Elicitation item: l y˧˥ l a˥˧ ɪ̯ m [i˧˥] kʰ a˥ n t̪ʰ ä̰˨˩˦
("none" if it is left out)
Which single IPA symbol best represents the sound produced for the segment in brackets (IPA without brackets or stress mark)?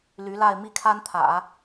i˥˩